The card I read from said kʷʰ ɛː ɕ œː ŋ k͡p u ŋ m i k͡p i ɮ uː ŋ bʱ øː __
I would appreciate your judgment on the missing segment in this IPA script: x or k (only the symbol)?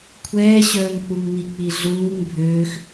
x